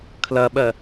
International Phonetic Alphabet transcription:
kʰ l ɐ ɓ ɜ

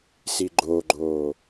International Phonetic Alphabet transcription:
s i ɡ͡ǃ o ɡ͡ǃ oː

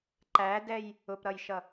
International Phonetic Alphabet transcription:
ǃ æ d ɛ j | ʊ p ɾ ʌ j ʃ ʌ

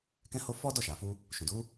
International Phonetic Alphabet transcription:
k ɛ̃˦ h o˦ f ɔ˦ d ɔ˦˨ ʃ a˨ f u˧ | ʃ ũ˨ d u˨˦

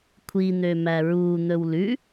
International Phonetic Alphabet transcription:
kʷʰ i n̪ ø m æ ɹ uː n̪ ɵ w l ʉ

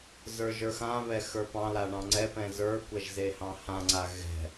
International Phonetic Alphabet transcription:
z ə˞ ʒ ə˞ x ã β ɛ x ə˞ p ɑ̃ l a ɳ ɑ̃ ŋ͡ǀ ɛ p ɛ̃ z ə˞ kʷ ɛ ʒ z e h ɑ̃ h ã ŋ͡ǀ a ɣ ɛ̤

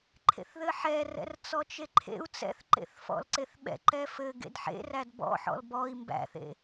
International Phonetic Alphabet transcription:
ǃʰ ḛ θ ð ɘ ħ ɛ r ɛ̰ r t͡s ɔ t͡ʃ e ǃʰ ḛ u̯ t͡s ɛ̰ θ ǃ ḛ θ f ɔ̰ l ǀ e θ ɓ ɛ̰ ǃ ɛ f ɘ ɡ ḛ d ħ ḛ r æ d b ɔ̰ ħ ɔ̰ l b ɔ i̯ m b æ̰ θ ḛ

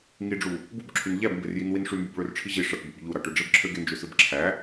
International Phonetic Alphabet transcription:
ŋ i ɖ͡ʐ u | b u b ǁʰ y n ʎ æ b m b e r j i n w i n ʂ y m b y b ɭ ø r ʈ͡ʂʰ i ʑ i ʂ ɑ ʈ b u b ʎ u ɾ ɑ ʈ ø ɖ͡ʐ e b ǁʰ ø ɡ e n d͡ʒ ø s ɯ b ǁʰ æ

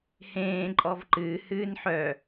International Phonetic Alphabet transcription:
h ẽː ǃʼ ɔ v ǃ ɨː h ɨː n ħ œ

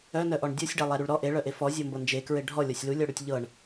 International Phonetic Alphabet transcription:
œ n œ ʔ ɔ ɳ dʲ ɔ sʲ ɖ æ lˠ æ ɾ u ɭ ɾ ɔ ʔ e ɭ œ ʔ e f ɔ zʲ ɤ m b ɤ n d͡ʒ e k ɹ e ɖʱ ɔ lʲ ɔ sʲ l u lʲ ɔ ɽ u tʲ ʎ ɤ ɳ

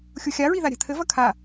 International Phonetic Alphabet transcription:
xʲ u xʲ a ɹ i ð a ɾʲ a̤ t̪ʰ ɘ v ɐ kʰ a

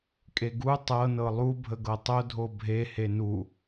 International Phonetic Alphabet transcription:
kʼ e ɡ u tˤ ɤ n ɤ lˠ u bʱ ə ɡ ɤ tˤ o dʱ o bʱ e h e n u

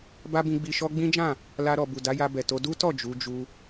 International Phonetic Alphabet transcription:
b a˦ b ĩ˧ ɡ͡b i˧ ʃ ɔ˦ ɡ͡b ĩ˦ d͡ʒ ã˦˨ | l a˧ ɾ ɔ˨ b u˨ d a˨˦ j a˧ b ɛ˨ t o˧ d u˦ t ɔ˦˨ d͡ʒ u˨˦ d͡ʒ u˧

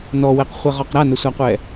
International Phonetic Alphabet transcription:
n ɔ w ɛ q χʷ ɛ ʁ ɔ q ɾ a n ə sʷ a qʷ ɛ

